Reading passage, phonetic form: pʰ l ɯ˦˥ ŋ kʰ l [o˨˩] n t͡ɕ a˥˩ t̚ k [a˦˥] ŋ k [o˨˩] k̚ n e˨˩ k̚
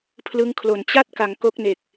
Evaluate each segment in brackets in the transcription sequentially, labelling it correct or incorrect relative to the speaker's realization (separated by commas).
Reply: correct, incorrect, incorrect